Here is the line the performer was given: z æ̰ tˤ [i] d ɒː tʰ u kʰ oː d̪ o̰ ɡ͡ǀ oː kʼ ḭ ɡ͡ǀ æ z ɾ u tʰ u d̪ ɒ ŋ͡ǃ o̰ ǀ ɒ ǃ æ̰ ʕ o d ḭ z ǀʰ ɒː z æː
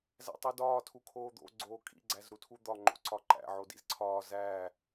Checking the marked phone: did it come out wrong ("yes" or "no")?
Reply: no